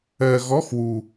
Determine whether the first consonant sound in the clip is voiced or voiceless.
voiced